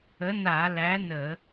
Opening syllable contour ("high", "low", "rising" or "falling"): rising